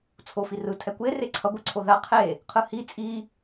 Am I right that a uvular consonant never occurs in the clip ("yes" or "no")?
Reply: no